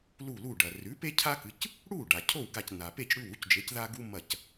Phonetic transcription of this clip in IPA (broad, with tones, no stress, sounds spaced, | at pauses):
l u˥˩ l u˥˩ ɖ ɐ˩ r ʉ˩˥ p e˦ cʰ a˦ k ɨ˩˥ c | ɽ u˥˩ ɖ a˩ cʰ o˥˩ w ɡ a˧˩ c n a˩ p e˥˩ c ɽ ʉ˥˩ w u˦ c d͡ʒ e˩˥ c ð a˦ ɡ u˦ m ɐ˧˩ c